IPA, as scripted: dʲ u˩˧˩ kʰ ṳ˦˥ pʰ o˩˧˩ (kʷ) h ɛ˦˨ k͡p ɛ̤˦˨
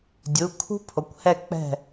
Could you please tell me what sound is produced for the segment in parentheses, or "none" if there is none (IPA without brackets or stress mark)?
kʷ